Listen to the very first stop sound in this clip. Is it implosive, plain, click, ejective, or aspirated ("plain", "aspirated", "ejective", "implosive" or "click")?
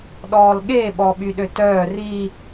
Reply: implosive